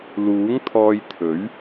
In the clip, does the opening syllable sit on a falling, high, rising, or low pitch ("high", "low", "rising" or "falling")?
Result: rising